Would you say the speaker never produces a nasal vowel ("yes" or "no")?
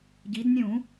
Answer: no